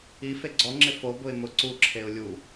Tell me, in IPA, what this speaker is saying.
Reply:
i f e ɡ͡ǀ ɔ ŋ͡ǁ ɪ f o b ʊ ɪ̯ m ʊ ǀ u ǁʰ e ʊ̯ lʲ u

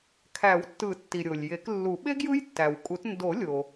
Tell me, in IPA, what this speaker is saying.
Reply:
kʰ æ˨˩˦ w tː ɯ˨˩˦ tː i˩ ɾʲ o˩ lʲ j e˨˩˦ k lː u˨˩˦ ɓ e˦˥ ɡ j ɯ˦˥ j tː æ˩ w kʼ u˨˩˦ t n d o˨˩˦ lʲ o˩

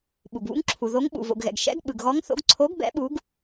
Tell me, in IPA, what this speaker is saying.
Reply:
ɓ u˩ ɡ β ṵ˨˥ ŋ ǁʰ u˩ ð o˨˥ ŋ ɓ ṵ˩ v o̰˩ ɡ ɣ ɛ̰˩ ɡ ʃ ɛ̰˨˥ ɡ ɓ ɯ˩ ɡ ɣ ɔ˨˥ ŋ θ o̰˨˥ ɡ ǀʰ o˨˥ ɡ b ɛ̰˨˥ ɓ u˨˥ ɡ

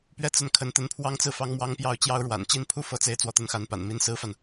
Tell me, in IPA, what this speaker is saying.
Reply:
p ɥ ɛ˥˧ t͡s ə˥˩ n kʰ ə˧˥ n t̪ ə˧˥ n pʰ w ɑ˥ ŋ t͡s ɹ̩˥˩ f ɑ˥ ŋ m w ɑ˥ ŋ p j ɑ˥˩ ʊ̯ t͡ɕ j ɑ˥ ʊ̯ ɻ w a̰˨˩ n t͡ɕ i˥ n pʰ u˥ f ɤ˧˥ t͡s e˧˥ ɪ̯ t͡s w ɔ˧˥ t̪ ə˧˥ n x a˧˥ n p a̰˨˩ n m i˧˥ n s ɹ̩˥ f a˨ n

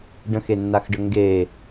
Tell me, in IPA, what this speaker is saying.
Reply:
ɖ ə̃ x e nː a x ɖ ə ŋ ɡ e

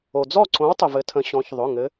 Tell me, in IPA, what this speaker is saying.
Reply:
o˩ d͡z ɔ˥˩ ǀ õ˨˥ w tˤ ə˩ v ɘ˩˧ tʰ ə̃˩˧ ɕ ɔ̃˩˧ ç ðˤ ʊ˩˧˩ ŋ ɘ˨˥

